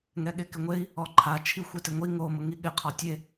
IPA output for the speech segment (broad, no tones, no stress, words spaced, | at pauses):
ŋɛɠekɪŋʷei̯ | ɔǃʰa t͡ʃʰixʷetɪŋʷi ŋo mʊŋiɠɪ qʰɔtʲe